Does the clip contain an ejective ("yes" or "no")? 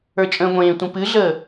yes